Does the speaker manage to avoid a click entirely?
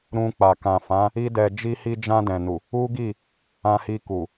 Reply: yes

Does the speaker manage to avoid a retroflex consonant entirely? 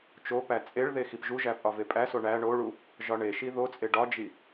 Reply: no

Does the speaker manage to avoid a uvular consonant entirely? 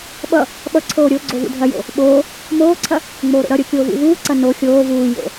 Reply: yes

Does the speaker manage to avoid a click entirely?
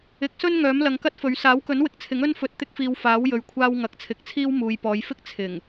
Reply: yes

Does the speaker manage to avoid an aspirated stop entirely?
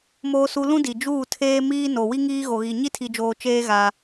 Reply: no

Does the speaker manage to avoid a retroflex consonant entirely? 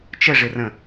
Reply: no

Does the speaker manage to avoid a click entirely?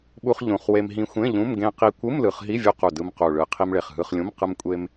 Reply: yes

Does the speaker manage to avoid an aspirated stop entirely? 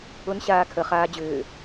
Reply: no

